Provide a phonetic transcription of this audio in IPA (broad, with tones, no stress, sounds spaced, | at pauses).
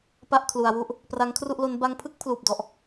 p a˥˩ ʔ kʰ l u˧ a̯ w u˥˩ ʔ | p r a˦˥ ŋ kʰ r u˥˩ ʔ l o˦˥ n b a˧ ŋ pʰ ɯ˥˩ k̚ pʰ l uː˨˩ p̚ d ɔ˨˩ ʔ